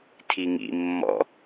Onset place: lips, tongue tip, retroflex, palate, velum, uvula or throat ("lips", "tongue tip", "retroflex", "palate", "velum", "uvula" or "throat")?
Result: tongue tip